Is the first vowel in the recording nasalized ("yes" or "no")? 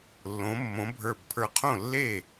yes